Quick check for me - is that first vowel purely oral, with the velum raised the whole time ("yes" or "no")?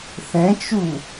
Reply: no